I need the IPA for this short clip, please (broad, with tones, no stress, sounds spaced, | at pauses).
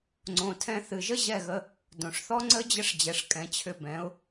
ŋ͡ǀ õ˩ tʰ ɛ̃˧ θ ɨ˩ ʒ ə˥ ʑ ɛ˥˩ ɣ ə˧ | d õ˩ ʂ θ ɔ˥ ŋ͡ǀ ə˥ d͡ʑ ə˥ ʂ d͡ʑ ɛ˩ ʂ kʼ ɛ̃˩˥ t͡ɕʰ ʏ˧ b ɛ̃˩˥ ʊ̯